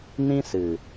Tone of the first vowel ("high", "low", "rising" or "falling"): high